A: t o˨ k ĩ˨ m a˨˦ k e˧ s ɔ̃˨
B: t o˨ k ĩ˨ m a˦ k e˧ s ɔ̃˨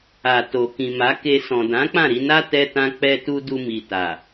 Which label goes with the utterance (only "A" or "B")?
A